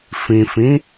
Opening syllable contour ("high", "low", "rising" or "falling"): low